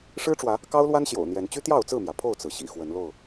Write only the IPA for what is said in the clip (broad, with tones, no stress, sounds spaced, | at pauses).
ʂ ɻ̩˦ ʈ͡ʂ w ä˨˦ | k ɑ˦ ʊ̯ l w a˦ n ɕ j o̰˨˩ ʊ̯ n̪ j ɛ˨˦ n t͡ɕ y˦ t̪ j ɑ˥˨ ʊ̯ t͡s ɹ̩˥˨ m j ä˩ pʰ o˥˨ ʊ̯ t͡s ɹ̩˩ ɕ ḭ˨˩ x w ə˨˦ n l o˥˨ ʊ̯